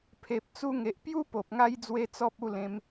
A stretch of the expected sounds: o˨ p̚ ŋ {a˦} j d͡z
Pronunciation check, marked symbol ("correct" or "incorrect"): correct